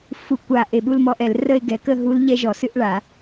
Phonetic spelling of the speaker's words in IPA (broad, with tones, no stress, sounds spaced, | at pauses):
f u˧˩ kʷ a˧˩ ʔ e˧˩ ɓ u˥˧ l m ɔ˦˥ ʔ ɛ˨˩˦ l r ə˥˧ e̯ ɡ ɛ˩˥ k ə˥˧ ɦ u˦˥ l ʎ ɛ˦˥ ʒ ɔ˨˩˦ s ɨ˦˥ ʔ ɭ a˨˩˦